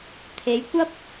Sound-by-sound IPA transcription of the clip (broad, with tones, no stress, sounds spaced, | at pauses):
t̪ʰ e˨˧ j kʷ ɐ˥ p̚